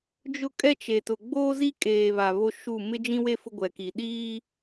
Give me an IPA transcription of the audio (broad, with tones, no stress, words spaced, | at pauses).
d͡ʒʊ˦kʼɛ˦ t͡ʃe˨tʊ˨ ɡ͡boː˦zi˦kʼeː˨βa˨ βo˦ʃu˦˨ mɪ˦d͡ʒĩ˦we˦ fʊ˦ɡʷɛ˨ki˨ ɗiː˦